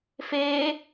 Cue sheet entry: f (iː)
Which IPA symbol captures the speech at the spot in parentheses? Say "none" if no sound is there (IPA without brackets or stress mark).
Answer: eː